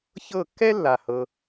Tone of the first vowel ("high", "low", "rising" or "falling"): falling